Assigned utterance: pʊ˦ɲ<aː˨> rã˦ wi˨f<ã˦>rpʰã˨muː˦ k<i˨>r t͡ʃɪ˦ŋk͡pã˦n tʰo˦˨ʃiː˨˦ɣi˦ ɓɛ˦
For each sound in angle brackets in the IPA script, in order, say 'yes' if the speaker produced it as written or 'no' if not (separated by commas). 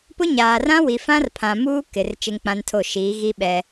yes, yes, no